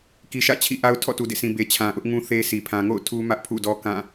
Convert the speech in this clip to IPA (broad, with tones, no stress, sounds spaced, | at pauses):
k i˨ ʃ ä̰˦˨ t͡ɕʰ ḭ˦˨ ʔ a˦ ʊ̯ tʰ ɔ̰˦˨ t u˨ d ḛ˦˨ s ĩ˨ b e˨ t͡ɕʰ ã˨ ʔ ʊ˦ ʔ ŋ ũ˦ θ e˦ s i˨ pʰ ã˨ ŋ o̰˦˨ ʊ̯ tʰ u˦ m ä˦ ʔ pʰ ṵ˦˨ d ɔ˦ k ã˦˨